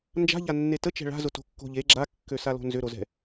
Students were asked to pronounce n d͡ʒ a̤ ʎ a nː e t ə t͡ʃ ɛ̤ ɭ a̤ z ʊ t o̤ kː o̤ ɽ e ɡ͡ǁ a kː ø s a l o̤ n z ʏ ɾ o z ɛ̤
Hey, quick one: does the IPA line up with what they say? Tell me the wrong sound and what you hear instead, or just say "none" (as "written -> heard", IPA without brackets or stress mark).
ɽ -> ʎ